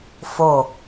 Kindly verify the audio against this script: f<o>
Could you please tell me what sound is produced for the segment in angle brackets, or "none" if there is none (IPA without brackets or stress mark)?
o